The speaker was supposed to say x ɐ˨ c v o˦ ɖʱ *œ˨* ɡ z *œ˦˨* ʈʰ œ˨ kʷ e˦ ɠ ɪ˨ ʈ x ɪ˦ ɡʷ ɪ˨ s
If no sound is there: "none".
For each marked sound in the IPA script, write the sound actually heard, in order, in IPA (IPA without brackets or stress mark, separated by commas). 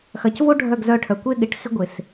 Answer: œ˦˨, œ˦˨